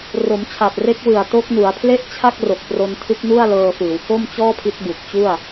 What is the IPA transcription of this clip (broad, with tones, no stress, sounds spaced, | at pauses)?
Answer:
r o˩˦ m t͡ɕʰ a˨˩ t̚ r e˦˥ k̚ w ɯ˨˩ a̯ t o˦˥ k̚ n u˩˦ a̯ pʰ l e˥˩ ʔ t͡ɕʰ a˥˩ k̚ r o˨˩ k̚ p r o˧ n tʰ ɯ˦˥ k̚ n u˥˩ a̯ l ɤː˧ f ɯː˩˦ w k o˥˩ m t͡ɕ ɔː˥˩ pʰ i˦˥ t̚ b u˨˩ k̚ t͡ɕ u˥˩ a̯